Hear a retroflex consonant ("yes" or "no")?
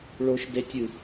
yes